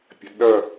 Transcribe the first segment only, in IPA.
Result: pʲ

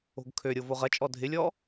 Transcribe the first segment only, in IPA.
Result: o̤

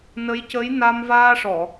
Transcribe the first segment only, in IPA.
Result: n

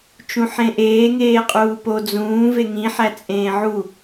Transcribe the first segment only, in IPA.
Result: t͡ʃ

